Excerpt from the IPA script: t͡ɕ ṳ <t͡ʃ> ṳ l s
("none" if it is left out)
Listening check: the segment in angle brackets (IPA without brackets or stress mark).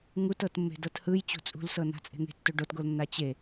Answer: t͡sʼ